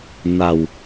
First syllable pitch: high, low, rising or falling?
low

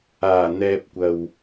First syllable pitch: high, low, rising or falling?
low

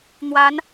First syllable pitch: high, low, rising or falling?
rising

